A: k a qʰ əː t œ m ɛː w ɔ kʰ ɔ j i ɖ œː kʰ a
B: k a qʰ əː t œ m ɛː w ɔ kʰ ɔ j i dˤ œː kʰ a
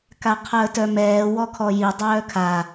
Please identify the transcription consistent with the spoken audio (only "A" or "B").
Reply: B